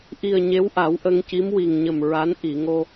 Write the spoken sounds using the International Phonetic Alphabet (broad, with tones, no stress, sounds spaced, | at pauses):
ʔ i˨˩ ə̯ ɲ e˧˥ w ʔ a˨˩˦ w ʔ ə˧ ŋ c i˧˥ m w i˨˩ ŋ ɲ ə˨˩ m ɹ a˧˥ n ʔ i˨˩˨ ŋ o˧